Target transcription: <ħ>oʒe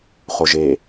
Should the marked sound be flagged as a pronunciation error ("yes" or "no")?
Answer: yes